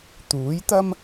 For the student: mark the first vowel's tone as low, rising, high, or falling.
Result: rising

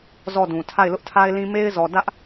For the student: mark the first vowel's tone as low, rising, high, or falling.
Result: falling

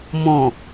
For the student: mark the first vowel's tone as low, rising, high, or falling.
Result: low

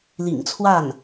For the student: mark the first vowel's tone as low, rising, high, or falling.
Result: low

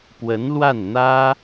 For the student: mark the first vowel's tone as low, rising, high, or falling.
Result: rising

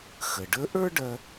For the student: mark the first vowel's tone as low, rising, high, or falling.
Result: low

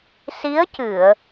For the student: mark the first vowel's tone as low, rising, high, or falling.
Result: rising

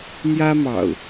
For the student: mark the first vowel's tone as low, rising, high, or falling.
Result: high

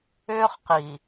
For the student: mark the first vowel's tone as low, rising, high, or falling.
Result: high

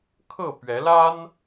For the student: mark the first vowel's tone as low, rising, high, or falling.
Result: falling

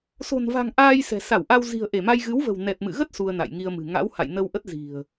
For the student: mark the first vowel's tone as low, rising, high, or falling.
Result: low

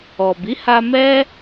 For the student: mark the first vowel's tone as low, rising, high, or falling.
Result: low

